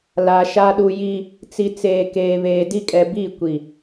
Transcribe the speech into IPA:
l a˨ ʃ a˦ ɗ u˦ j i˦ | t͡s i˨ t͡s eː˨ k eː˨ β eː˨ d i˦ kʼ ɛ˨ b i˦˨ kʷ i˨

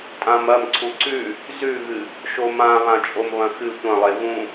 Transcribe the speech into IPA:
tʼ ã m ɐ m ǀʰ u ǀ ʉ | z ʉ ɣ ɨ | ʃ o m ã β ã t͡ʃʼ o m β ɐ̃ x ɨ tʷ ɐ̃ lˠ e v ũ

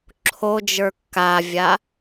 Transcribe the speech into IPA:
ǁʰ o d͡ʒ ə˞ kː a vʲ a

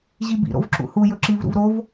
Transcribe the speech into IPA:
ʑ i b ḭ ɾ o̰ v ǁ ṵ h u j ɵ ǁ i v ɾ ṵ v ɾ o v

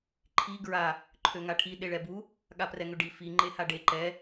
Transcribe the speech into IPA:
ǃʰ i ɡ ɹ a | ǃʰ ø ŋ a ʈʰ i ɗ e ɭ ɛ b u | ɠ a p r ɛ ŋ ø ɖ i f i ŋ͡ǃ e h a ɖ e ǃ ɛ

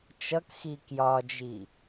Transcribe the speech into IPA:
t͡ʃ ʌ k x i k j ɒ d͡ʒ i

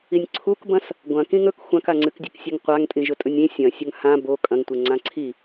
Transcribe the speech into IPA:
i nʲ ǀʰ u k b ɐ̃ s | ɡʷ ɐ̃ k ĩ ŋ ɵ k xʷ ã k a ŋ͡ǀ ɨ k dʲ ɵ k sʲ e ŋ qʷ a ŋ tʼ ĩ ʒ ɵ tʼ ɵ nʲ ĩ sʲ ɐ̃ sʲ ɵ ŋ h ã b o kʼ ɐ̃ ŋ tʷ e ŋ͡ǀ ã ǀʰ i

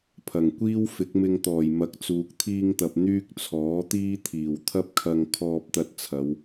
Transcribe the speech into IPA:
pʰ ɐ˨˩ ŋ kʷ iː˥ w f ɪ˨˥ k̚ m ɪ˧ ŋ t̪ ɔː˨˩ j m ɐ˨˥ k̚ t͡s uː˨ k̚ t̪ʰ iː˧ ŋ t̪ ɐ˨ p̚ n̪ yː˥ k̚ t͡sʰ ɔː˨˥ t̪ iː˥ t̪ʰ iː˨˩ w t̪ʰ ɐ˥ p̚ kʰ ɐ˧ ŋ kʰ ɔː˧ p̚ t̪ ɐ˧ t̚ t͡sʰ ɐ˨˧ w

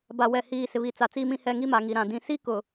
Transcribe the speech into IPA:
b a˨ w ɛ˨ h iː˨ s ɪ˨ β i˨ t͡s a˨ t͡s iː˨ m ĩ˨ h ɛ˨ ŋ i˦ m a˨ ŋ i˨ ɾ ã˨ d ĩ˨ s i˦ k ʊ˨

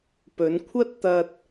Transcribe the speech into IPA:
p ɵ˨˧ n kʷʰ ɐ˥ t̚ t̪ ɐ˧ t̚

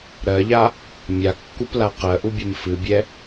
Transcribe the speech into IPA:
ɾ ɜ ʎ a | mʲ a kː u p l a q ɜ ʔ u bʲ ɛ m f ɨ bʲ ɛ

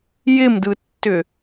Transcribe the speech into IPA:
j ɪ m d ɯ tː ʏ

